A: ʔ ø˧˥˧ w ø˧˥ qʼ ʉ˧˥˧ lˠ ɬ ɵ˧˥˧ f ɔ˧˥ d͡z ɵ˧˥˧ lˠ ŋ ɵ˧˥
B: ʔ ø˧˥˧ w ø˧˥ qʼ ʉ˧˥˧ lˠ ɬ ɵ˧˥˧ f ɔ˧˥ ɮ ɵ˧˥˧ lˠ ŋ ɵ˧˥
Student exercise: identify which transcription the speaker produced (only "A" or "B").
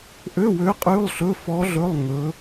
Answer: B